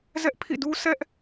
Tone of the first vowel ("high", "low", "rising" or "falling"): high